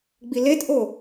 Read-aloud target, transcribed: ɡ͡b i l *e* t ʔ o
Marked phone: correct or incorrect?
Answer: correct